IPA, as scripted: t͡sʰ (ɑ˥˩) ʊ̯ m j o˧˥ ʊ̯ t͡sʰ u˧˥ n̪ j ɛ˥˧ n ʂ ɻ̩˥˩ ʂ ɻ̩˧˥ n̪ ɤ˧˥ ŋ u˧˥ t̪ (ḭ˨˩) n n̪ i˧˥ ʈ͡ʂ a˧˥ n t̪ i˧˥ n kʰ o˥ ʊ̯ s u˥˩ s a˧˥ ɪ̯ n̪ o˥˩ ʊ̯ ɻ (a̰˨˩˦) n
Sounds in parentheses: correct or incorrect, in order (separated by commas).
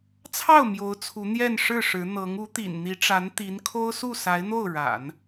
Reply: correct, correct, correct